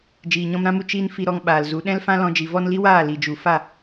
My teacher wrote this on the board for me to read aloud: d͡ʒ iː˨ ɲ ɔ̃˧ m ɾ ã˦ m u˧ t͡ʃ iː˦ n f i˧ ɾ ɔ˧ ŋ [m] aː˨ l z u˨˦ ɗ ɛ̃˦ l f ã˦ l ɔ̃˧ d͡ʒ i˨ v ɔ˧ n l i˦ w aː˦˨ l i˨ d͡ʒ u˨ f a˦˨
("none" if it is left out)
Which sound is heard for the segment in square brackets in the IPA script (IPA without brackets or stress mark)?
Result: ɓ